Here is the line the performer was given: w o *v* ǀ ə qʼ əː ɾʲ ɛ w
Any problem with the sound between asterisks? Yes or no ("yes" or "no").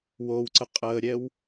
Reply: yes